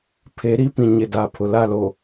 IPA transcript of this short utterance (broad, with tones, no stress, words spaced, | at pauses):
pʰe˨˦ɾi˦pĩ˨ ɲɪ˨da˨ pʰʊ˨la˦˨lo˨